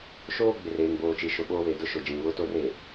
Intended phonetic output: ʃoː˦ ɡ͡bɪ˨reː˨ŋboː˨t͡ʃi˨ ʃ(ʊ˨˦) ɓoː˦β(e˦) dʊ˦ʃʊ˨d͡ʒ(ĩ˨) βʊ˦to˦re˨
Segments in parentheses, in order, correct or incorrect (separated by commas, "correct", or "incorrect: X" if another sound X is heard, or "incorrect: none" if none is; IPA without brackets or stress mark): incorrect: ʊ˨, incorrect: e˨, correct